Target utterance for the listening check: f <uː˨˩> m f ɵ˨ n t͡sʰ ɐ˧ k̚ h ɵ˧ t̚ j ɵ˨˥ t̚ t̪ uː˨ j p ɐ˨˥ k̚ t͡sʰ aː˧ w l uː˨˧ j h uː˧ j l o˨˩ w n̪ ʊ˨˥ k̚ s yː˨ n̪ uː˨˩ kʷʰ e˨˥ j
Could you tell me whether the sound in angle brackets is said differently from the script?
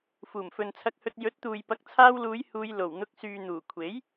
no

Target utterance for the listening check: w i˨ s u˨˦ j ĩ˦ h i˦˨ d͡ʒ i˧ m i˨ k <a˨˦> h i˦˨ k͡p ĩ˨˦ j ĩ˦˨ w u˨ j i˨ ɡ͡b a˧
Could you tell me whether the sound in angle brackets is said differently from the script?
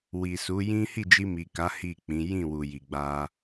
no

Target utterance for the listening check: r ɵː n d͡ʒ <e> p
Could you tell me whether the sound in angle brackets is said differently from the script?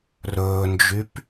yes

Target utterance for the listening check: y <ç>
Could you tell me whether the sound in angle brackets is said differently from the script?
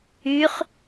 yes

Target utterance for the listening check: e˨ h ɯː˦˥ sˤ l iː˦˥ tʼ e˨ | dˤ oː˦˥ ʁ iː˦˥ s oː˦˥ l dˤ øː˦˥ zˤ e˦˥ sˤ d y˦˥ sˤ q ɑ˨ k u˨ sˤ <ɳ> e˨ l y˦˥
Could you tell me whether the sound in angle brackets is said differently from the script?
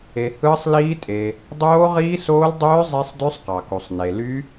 yes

